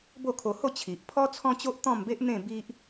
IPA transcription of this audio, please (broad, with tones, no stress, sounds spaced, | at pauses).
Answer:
b o˥˧ kʰ o˧ h o˥˧ t͡ɕʰ i˨ ʔ pʰ ɔ˦ t͡sʰ ɔ̃˦ t͡ɕ o˦ ʔ t̪ ɔ̃˥˧ m b e˦ ʔ n̪ ẽ˥˧ b i˦ ʔ